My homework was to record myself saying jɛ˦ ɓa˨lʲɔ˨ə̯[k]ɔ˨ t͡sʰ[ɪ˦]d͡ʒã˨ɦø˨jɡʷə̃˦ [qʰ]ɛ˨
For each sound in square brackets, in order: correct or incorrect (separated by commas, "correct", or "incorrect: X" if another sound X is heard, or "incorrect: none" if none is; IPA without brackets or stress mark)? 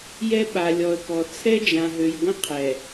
correct, incorrect: ɛ˦, correct